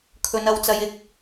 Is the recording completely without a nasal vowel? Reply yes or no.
yes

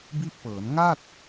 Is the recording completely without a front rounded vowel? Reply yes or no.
yes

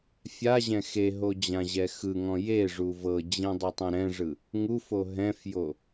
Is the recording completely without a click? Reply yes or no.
yes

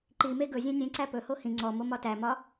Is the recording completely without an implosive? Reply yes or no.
yes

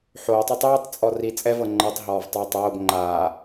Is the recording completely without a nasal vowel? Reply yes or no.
yes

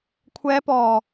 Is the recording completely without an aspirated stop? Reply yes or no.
no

